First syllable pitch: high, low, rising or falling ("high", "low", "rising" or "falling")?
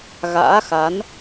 rising